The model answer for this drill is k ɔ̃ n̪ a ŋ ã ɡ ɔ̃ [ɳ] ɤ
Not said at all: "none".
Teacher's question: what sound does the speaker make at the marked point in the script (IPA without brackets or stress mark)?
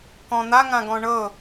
ɳ